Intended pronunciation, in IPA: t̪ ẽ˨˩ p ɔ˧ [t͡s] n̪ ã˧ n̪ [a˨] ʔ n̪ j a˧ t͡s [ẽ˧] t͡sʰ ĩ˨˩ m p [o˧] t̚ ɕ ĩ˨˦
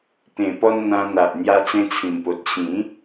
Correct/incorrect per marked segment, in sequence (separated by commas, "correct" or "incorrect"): incorrect, correct, correct, incorrect